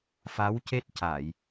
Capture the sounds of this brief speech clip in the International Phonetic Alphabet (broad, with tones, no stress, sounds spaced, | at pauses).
f a˧˥ w c e˦˥ t̚ c a˨˩˨ j